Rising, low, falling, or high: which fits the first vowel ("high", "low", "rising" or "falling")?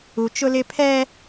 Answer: low